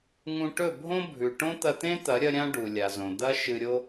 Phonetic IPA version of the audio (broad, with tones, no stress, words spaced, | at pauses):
ŋũ˧ ʈɵ˦˨bʱõ˦ bʱʉ˨ ʈõ˦t̪ɐ˧t̪ẽ˦t̪ɐ˨˦ ɾʲɐ˧ɾʲã˧ ɖu˨lʲa˨zõ˨ d̪ɐ˦ ʃɨ˧ɾʲo˦